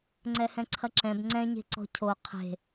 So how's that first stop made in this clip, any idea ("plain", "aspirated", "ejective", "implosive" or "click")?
click